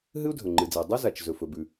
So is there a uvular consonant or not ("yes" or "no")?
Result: no